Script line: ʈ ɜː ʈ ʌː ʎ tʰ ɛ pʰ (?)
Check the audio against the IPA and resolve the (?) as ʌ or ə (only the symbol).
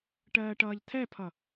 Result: ʌ